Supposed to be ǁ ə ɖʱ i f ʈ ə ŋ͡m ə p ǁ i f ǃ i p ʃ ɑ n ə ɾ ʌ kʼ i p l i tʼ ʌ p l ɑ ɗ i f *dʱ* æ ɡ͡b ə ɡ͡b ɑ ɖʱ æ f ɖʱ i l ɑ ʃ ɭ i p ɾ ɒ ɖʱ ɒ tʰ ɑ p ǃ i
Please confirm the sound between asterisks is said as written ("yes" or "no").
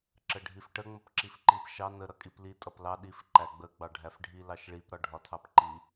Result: no